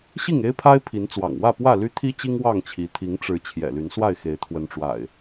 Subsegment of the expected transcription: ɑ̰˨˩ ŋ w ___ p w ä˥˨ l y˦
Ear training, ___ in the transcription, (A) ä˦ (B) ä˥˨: B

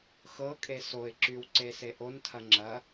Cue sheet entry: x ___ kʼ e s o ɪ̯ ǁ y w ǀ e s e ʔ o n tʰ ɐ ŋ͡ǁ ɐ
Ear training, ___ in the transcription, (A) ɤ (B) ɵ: A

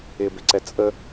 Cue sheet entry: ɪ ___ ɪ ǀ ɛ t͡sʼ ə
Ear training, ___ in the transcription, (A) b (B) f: A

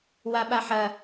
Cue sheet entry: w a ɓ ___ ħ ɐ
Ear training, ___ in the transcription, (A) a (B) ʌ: A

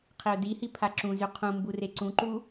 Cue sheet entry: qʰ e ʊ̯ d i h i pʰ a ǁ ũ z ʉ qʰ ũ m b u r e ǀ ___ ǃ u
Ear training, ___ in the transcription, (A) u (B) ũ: B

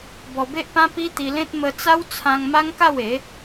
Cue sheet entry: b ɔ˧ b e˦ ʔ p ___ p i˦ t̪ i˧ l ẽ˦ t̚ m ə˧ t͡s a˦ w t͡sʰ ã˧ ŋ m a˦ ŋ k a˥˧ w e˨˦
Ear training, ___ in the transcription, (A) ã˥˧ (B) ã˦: B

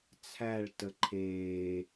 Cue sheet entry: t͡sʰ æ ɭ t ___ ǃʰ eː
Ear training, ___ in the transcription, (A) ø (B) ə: B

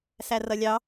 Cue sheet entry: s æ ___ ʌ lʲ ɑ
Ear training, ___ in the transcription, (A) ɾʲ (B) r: B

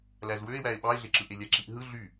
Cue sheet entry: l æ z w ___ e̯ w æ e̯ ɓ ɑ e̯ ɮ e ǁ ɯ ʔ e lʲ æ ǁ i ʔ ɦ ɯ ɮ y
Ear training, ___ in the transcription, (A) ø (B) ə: A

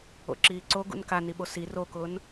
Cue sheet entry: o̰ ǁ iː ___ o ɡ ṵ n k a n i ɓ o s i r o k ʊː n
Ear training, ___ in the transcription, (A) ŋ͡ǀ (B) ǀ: B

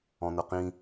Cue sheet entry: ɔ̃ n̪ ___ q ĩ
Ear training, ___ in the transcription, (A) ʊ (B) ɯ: A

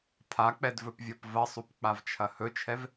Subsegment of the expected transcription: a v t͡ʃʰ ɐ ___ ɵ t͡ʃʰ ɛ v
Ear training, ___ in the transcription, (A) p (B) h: B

